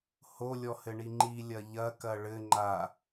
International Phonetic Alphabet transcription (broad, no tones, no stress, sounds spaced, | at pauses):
h o lʲ ɔ h ɘ ɳ i ŋ͡ǃ i lʲ ɐ ʎ ɐ k ɐ ɭ ɘ ŋ͡ǃ a